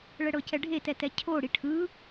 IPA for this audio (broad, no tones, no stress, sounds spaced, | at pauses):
ɭ ɛ ɽ ɤ c ɛ ɖʱ e t ɛ t ɛ cʰ o ɽ i ʈʰ ɯ